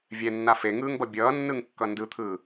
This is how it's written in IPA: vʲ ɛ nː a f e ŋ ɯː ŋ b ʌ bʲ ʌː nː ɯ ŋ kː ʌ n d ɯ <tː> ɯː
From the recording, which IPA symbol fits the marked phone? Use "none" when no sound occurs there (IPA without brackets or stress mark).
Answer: t̪ʰ